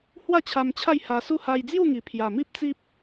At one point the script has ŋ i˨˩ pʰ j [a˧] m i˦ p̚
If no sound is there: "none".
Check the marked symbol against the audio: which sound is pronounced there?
a˨˩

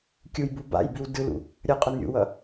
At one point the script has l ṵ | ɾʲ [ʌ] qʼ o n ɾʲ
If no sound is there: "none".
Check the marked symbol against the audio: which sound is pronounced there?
ʌ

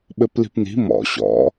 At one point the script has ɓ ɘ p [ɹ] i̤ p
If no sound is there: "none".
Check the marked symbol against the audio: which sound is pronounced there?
l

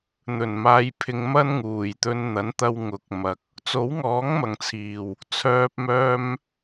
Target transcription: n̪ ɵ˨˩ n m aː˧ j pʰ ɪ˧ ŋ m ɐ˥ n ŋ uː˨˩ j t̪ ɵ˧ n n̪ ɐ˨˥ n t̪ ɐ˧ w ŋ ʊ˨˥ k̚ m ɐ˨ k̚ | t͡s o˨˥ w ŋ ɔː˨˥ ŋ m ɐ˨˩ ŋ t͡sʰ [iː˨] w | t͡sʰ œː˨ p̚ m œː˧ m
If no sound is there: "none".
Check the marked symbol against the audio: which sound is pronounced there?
iː˨˩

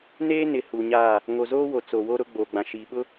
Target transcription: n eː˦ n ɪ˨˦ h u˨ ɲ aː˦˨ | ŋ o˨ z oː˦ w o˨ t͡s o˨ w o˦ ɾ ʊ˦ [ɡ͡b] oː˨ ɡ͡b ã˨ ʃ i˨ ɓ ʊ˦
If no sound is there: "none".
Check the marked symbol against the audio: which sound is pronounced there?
ɡ͡b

